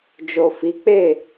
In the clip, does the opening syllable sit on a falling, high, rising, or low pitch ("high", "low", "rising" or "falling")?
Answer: low